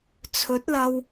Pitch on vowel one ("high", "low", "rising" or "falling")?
rising